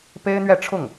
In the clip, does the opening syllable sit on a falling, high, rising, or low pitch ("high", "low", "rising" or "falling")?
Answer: high